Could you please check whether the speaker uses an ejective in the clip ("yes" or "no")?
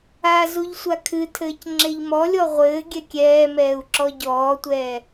no